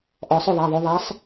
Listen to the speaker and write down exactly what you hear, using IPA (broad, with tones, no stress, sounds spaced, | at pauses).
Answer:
ʔ ɔ˩˧ sˤ ɵ˦˨ ðˤ a˩˧˩ ðˤ ɵ˩˧ ðˤ a˨˥ sˤ